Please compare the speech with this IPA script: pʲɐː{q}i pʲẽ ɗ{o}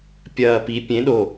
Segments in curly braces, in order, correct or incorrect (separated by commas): incorrect, correct